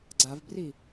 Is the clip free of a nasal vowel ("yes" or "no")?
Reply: yes